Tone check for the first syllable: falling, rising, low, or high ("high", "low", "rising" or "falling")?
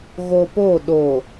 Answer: low